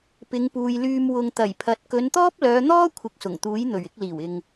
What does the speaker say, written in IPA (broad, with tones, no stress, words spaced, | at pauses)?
pɪ˨˧ŋpuː˨jlyː˧m wʊ˨ŋt̪ɐ˨˩jpʰɐ˨t̚ kɵ˨˧nt̪ɔː˥p̚lœː˨˧n̪ɔː˥ kʷʰɪ˨˥k̚sʊ˨˩ŋt̪uː˨˥j n̪ɵ˨˩ɥɪ˧k̚ liː˨˩wɪ˨ŋ